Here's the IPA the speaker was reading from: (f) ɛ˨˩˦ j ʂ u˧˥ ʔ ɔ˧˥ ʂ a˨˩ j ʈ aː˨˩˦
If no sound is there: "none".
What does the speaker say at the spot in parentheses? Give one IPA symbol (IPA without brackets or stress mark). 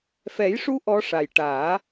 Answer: f